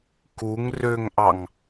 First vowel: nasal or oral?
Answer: oral